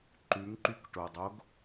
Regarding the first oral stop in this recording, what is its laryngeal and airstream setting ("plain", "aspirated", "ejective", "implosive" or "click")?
click